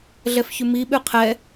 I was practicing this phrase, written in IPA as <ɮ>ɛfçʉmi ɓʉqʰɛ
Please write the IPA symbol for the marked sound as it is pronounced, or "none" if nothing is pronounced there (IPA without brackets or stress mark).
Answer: ɮ